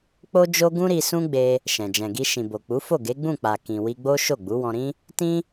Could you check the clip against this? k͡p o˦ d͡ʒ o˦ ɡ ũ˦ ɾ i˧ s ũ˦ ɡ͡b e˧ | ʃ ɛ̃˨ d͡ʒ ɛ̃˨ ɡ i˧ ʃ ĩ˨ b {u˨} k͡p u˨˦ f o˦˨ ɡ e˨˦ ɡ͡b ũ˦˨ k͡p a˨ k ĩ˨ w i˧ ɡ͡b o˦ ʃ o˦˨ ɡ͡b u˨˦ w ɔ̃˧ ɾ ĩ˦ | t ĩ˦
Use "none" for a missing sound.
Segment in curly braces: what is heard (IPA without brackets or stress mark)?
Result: o˨